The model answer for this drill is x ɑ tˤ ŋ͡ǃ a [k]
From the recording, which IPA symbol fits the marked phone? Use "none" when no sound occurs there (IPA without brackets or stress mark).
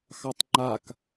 k